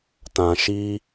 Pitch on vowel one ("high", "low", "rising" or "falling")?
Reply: low